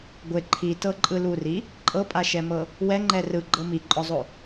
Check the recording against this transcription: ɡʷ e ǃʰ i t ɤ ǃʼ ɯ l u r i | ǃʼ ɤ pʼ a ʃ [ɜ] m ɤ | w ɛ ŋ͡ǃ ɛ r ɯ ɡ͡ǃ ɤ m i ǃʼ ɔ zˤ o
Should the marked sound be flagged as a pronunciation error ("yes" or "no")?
yes